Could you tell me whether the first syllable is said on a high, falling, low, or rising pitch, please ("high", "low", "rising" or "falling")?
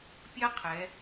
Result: high